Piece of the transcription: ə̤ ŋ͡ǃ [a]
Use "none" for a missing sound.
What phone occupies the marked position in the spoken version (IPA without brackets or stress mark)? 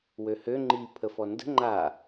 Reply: a